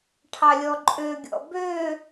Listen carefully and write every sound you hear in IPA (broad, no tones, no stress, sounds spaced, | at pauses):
ʈʰ ɑ lʲ ɔ ǃʼ ø ɡʲ ɔ̰ b ø